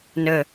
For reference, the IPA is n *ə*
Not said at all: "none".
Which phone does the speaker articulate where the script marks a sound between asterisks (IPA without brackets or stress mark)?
ə